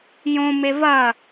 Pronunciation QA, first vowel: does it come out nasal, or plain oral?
nasal